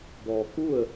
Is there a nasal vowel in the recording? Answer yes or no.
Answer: no